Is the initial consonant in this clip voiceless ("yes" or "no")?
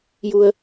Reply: no